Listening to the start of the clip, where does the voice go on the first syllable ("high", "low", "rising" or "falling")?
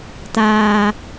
low